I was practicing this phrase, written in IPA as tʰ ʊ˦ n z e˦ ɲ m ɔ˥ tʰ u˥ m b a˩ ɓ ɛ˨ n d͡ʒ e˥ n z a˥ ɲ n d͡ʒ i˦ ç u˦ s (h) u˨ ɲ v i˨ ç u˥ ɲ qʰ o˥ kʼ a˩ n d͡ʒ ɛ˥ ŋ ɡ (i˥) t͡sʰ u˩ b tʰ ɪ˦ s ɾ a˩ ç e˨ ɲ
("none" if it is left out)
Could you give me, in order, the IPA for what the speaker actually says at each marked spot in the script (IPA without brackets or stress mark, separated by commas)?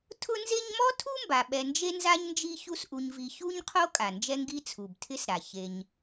ʔ, i˥